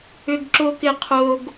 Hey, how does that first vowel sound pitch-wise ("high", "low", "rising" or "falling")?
high